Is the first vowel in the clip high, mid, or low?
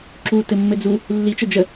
high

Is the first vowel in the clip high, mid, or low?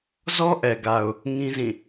mid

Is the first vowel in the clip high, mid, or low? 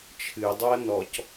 high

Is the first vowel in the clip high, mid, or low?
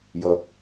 mid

